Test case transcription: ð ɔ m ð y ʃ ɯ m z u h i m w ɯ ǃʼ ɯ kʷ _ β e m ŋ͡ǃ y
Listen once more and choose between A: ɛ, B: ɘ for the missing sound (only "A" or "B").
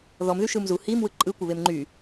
B